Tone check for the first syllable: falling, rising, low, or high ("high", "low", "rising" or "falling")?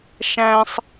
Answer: high